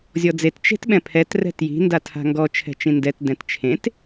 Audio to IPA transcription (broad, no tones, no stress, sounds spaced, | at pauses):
zʲ ɔ d͡z e t t͡ʃ e̤ t ɓ ɛ̃ pʰ ɛ t r ɛ̤ t j i̤ n d a tʰ a̤ ŋ ɡ ɔ t͡ʃʰ ɛ̤ t͡ʃ ĩ n d ɛ t d ɛ̃ t t͡ʃʰ ẽ t